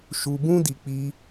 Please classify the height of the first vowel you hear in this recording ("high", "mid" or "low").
high